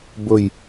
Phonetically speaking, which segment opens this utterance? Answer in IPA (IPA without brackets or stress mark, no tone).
b